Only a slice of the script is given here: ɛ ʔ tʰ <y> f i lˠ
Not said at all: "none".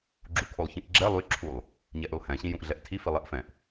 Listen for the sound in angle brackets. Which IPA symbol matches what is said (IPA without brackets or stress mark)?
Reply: i